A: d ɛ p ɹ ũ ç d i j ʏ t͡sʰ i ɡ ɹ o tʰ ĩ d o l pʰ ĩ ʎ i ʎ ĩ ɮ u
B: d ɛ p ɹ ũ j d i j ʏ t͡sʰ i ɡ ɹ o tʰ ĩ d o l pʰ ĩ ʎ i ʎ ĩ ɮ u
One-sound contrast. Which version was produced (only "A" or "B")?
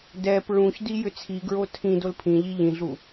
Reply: A